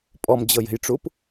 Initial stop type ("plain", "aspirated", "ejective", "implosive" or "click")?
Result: ejective